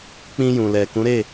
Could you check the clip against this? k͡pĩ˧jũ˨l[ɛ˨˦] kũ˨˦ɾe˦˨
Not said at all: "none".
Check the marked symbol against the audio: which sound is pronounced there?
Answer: ɛ˨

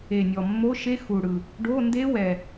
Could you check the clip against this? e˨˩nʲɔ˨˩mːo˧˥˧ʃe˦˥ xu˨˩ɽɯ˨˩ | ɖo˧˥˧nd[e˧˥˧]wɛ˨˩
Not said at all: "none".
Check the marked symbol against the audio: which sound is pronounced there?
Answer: e˦˥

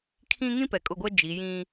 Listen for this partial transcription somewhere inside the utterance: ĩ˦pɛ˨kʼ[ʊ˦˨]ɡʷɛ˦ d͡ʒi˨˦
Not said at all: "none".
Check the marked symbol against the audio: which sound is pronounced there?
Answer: ʊ˦˨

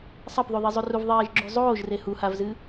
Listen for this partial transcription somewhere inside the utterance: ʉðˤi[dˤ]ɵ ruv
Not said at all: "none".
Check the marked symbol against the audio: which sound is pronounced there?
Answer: zˤ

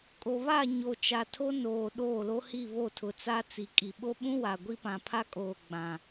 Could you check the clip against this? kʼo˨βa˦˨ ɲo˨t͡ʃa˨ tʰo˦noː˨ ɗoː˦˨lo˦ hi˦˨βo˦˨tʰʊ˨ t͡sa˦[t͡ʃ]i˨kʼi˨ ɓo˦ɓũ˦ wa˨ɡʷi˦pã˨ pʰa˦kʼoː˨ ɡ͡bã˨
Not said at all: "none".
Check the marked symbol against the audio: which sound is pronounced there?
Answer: t͡s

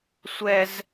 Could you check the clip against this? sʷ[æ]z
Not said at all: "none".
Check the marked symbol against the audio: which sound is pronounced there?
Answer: ɛ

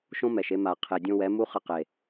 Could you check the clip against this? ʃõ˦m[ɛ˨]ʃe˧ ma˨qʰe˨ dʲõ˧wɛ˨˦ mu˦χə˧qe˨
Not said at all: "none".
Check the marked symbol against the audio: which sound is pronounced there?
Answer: ɛ˨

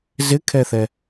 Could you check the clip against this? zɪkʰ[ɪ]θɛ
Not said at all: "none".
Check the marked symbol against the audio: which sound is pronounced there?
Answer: ɛ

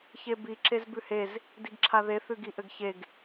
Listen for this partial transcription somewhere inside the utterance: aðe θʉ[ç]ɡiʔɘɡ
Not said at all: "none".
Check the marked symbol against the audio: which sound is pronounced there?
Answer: none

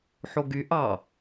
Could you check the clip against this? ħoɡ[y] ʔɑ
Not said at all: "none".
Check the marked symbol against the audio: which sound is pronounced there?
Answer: y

